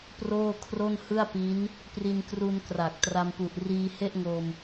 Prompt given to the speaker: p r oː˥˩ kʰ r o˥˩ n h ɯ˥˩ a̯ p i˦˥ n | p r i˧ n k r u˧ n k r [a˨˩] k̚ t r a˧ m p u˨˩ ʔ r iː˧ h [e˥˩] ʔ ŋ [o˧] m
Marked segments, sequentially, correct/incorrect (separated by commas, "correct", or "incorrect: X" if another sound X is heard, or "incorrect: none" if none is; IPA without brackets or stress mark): correct, correct, correct